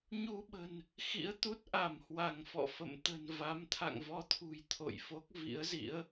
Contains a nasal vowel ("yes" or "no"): no